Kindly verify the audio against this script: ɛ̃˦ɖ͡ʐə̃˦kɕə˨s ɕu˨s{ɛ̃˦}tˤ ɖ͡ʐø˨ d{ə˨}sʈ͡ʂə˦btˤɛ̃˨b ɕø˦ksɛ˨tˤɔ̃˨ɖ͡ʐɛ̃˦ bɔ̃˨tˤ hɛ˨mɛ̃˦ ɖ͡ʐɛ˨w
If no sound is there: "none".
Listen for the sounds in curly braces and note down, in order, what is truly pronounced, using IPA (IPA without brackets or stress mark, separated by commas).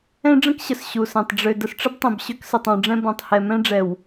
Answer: ɛ̃˨, ə˨